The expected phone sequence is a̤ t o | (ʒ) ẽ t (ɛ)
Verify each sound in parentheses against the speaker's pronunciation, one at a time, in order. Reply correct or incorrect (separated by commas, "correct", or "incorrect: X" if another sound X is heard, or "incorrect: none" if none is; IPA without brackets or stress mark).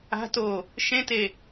incorrect: ʃ, incorrect: e